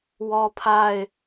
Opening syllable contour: high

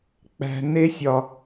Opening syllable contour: high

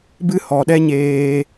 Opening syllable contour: high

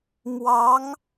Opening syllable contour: rising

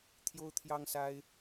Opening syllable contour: high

